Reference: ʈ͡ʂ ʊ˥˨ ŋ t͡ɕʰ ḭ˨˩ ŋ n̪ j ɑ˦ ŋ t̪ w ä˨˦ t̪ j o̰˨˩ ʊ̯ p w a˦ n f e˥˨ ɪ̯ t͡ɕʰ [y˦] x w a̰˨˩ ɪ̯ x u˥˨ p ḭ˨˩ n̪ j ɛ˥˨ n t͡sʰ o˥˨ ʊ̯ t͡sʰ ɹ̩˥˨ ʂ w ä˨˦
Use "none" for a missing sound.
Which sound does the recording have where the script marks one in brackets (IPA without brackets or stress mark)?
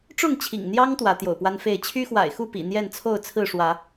y˦